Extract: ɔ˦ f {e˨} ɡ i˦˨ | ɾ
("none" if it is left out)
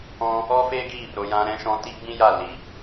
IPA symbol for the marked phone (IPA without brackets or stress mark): e˦